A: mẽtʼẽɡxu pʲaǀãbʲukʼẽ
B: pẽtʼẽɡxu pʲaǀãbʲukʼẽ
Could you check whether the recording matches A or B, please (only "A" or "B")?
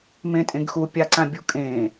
A